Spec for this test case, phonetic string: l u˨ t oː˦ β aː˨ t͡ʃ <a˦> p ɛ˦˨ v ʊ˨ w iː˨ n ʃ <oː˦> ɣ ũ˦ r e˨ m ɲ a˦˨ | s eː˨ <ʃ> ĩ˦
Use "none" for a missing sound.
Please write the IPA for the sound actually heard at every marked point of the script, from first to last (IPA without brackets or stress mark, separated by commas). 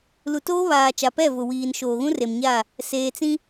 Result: a˨, oː˨, t͡s